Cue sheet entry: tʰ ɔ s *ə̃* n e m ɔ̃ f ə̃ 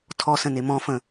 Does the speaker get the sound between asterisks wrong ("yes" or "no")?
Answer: no